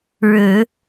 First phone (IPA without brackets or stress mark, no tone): ɻ